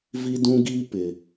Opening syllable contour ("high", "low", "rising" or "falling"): high